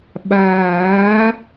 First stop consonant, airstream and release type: implosive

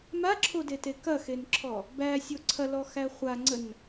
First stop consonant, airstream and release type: click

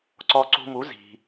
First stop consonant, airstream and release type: click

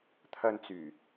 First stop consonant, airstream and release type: aspirated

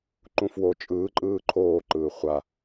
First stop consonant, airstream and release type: click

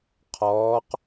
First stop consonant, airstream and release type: aspirated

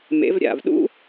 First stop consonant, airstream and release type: implosive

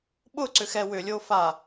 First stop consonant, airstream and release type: implosive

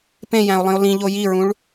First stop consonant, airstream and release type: plain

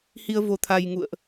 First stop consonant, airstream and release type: aspirated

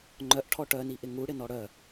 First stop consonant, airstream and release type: click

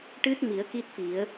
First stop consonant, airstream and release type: plain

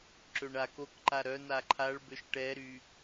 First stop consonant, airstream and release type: click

